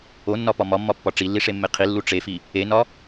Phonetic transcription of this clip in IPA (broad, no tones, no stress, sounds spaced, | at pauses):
o nː ɒ p ɒ m ɒ mː ɒ pː ɒ ʈ͡ʂ i lː i ʂ e mː e qʰ i lː u ʈ͡ʂ e f i | e n ɒ